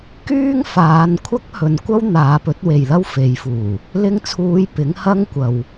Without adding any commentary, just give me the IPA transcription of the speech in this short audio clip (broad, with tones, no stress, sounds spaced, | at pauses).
k yː˥ ŋ f aː˨˧ n kʷʰ ɐ˥ k̚ h ɵ˨ n kʷ ɐ˥ w n̪ aː˨˧ p ɵ˨˥ t̚ w e˨ j l ɐ˥ w f e˨˧ j f uː˨˩ | l ɪ˧ ŋ t͡sʰ uː˨˧ j p ɪ˨˥ ŋ h ɐ˥ ŋ kʷ ɐ˨ w